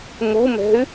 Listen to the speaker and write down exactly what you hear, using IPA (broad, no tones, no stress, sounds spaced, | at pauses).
m u m ɛ̤ y̯